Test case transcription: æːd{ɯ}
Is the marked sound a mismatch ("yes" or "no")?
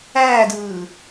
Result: yes